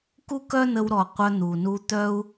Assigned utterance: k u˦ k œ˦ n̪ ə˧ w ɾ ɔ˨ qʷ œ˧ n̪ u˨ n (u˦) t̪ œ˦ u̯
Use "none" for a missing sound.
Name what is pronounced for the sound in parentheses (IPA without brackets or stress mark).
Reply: u˧